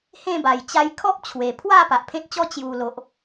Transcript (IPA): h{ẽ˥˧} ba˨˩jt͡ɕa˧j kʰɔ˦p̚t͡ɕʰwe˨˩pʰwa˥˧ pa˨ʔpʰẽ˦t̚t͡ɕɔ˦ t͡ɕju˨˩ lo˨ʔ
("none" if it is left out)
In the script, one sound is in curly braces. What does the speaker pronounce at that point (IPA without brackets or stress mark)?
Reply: ẽ˥˧